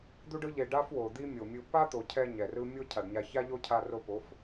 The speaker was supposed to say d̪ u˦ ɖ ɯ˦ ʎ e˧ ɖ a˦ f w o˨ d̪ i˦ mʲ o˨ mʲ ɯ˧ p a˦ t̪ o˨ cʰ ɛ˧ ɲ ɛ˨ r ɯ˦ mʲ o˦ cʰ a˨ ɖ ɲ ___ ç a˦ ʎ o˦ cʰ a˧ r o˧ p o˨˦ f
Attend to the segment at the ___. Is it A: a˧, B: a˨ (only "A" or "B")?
A